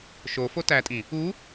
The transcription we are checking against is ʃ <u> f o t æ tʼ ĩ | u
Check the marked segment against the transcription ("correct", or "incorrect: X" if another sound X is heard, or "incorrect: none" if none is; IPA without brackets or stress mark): incorrect: o